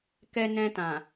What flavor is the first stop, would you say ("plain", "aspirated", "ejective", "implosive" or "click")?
plain